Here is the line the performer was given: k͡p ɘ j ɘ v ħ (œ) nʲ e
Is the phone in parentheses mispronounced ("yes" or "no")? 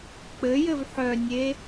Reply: no